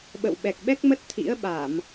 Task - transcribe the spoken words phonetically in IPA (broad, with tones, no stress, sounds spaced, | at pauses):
ɓ ə̰˧˨ w ɓ ɛ˨˩ k̚ ɓ ɛ˦˥ k̚ m ə˦˥ t̚ t̪ʰ ḭ˧˥ ə̯ ɓ a˧˩˨ m